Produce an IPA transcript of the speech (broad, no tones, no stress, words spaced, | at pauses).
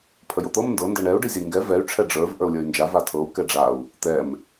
pʰəjot̪ɤm ndɤ ndɤɳɛu̯ ɖizʲəi̯ŋɡɛ vɛy̯ ʈ͡ʂʰɛɖ͡ʐə˞v ʔə˞u̯lʲə˞y̯nd͡ʒa vatʰɤu̯ kɛɖ͡ʐau̯ | t̪ɛm